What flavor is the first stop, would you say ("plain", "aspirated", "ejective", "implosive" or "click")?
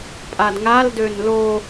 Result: ejective